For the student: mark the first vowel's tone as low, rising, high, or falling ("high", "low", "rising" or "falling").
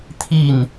falling